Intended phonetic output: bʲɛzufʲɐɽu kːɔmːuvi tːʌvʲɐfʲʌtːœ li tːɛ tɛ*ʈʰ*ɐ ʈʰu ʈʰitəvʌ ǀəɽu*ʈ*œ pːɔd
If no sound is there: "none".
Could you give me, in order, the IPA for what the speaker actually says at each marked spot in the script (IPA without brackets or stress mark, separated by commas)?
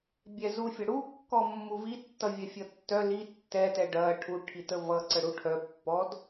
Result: ɖ, ʈʰ